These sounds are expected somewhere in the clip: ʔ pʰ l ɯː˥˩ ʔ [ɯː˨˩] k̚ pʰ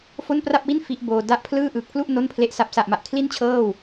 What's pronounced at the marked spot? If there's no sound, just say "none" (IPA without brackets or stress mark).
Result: ɯː˨˩